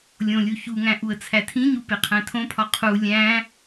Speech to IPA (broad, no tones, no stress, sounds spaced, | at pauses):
lʲ õ lʲ u ç u ŋ æ̃ ʔ u ə̯ t͡sʰ æ tʰ ĩ ɲ u p e qʰ æ̃ tʰ õ pʰ ɒ qʰ u lʲ æ̃